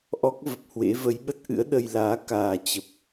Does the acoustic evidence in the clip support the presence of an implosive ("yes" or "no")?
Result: yes